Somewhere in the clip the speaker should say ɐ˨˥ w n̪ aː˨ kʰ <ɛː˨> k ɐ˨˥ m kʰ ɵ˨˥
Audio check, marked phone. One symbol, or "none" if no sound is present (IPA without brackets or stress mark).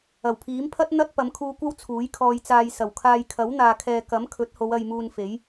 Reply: ɛː˨